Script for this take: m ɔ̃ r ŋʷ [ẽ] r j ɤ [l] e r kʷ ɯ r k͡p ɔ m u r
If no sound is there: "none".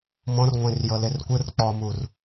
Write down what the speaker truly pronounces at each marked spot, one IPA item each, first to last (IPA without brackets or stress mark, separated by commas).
ẽ, l